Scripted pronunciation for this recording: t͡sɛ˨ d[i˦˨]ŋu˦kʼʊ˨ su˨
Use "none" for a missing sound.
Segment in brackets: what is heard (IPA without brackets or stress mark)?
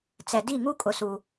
i˦˨